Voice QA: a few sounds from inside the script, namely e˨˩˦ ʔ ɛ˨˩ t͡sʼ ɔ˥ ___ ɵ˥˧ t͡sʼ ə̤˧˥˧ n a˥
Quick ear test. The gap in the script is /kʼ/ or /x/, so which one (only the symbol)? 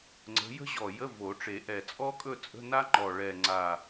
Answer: kʼ